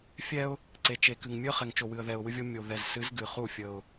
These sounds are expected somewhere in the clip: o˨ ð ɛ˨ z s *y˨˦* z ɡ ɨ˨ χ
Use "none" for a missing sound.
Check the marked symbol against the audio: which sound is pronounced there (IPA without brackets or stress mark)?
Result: ɨ˨˦